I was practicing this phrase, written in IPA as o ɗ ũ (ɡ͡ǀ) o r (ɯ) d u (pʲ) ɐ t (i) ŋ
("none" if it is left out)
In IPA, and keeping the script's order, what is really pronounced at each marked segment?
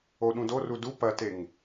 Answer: d, u, p, e

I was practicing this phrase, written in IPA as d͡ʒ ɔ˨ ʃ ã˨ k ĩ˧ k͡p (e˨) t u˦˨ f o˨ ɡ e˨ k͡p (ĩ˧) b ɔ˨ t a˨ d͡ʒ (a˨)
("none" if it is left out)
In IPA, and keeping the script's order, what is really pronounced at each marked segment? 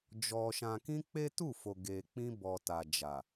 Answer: e˦, ĩ˧, a˨

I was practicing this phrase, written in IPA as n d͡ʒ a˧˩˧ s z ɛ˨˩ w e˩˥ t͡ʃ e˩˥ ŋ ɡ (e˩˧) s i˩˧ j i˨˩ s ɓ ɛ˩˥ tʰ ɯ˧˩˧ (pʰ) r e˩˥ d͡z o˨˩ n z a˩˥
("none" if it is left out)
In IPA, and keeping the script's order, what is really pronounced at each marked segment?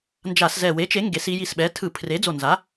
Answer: e˩˧, pʰ

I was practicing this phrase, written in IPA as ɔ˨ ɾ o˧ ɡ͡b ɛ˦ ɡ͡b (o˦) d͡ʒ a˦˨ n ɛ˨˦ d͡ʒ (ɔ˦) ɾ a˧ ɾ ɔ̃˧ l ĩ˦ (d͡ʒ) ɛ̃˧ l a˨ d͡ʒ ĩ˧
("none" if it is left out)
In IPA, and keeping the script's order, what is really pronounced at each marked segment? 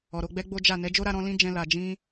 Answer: o˦, o˦, d͡ʒ

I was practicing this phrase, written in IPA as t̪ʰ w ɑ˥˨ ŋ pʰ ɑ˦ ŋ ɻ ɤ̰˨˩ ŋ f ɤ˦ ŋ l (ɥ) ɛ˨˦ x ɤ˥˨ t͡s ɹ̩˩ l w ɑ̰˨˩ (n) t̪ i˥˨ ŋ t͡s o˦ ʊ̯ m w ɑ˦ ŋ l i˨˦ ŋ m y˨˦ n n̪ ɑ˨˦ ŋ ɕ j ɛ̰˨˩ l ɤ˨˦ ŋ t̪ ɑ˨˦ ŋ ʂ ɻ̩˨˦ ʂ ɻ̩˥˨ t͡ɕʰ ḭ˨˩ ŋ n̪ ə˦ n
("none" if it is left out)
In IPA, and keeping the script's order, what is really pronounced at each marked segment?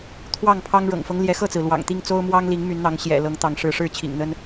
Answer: j, ŋ

